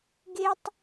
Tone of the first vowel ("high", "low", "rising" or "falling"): high